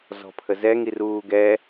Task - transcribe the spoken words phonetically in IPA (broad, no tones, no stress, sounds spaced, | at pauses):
z ɔ̤ pʰ ə z ɛ ŋ i r uː ɡ ɛ